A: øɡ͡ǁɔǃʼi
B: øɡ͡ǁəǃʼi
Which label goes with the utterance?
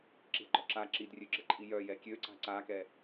B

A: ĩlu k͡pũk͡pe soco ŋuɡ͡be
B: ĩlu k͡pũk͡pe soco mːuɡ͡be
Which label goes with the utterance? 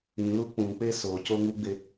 A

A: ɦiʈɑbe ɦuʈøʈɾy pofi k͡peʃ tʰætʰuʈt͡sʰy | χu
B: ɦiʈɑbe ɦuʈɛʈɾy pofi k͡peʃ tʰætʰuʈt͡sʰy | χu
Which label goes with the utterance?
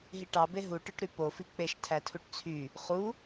A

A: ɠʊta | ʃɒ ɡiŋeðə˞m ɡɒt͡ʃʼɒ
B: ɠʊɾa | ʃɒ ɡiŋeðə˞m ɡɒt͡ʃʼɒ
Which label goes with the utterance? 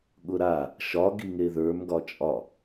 B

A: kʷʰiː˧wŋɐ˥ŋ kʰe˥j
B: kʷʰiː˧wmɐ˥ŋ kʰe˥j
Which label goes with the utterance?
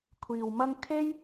B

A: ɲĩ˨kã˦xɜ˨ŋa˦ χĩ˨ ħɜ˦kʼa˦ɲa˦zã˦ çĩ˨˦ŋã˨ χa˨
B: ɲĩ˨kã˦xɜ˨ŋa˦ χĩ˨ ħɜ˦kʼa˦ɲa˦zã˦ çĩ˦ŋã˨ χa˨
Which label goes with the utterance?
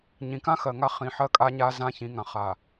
A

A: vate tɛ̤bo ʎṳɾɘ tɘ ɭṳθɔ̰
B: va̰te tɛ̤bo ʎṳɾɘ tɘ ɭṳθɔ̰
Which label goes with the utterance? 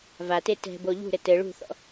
A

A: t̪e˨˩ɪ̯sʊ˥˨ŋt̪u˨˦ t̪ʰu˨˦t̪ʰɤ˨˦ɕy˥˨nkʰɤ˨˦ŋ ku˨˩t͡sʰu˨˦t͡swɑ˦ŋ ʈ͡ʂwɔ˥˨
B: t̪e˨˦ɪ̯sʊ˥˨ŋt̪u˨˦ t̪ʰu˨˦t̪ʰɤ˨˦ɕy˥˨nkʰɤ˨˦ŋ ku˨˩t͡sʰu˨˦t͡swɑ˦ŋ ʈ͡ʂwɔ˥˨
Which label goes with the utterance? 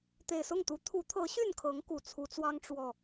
A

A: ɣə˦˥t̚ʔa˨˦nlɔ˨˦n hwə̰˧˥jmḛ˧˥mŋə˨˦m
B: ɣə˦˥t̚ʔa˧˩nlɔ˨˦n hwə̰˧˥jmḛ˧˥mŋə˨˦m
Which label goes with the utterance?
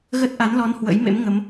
A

